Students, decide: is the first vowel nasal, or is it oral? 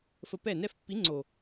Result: oral